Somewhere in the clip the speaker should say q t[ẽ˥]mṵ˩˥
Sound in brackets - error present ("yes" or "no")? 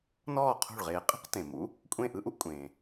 yes